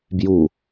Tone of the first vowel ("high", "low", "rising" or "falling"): low